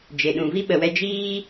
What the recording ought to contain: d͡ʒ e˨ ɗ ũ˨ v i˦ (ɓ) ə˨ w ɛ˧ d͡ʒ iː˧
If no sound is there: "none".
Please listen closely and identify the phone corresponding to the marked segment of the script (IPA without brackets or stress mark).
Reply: ɓ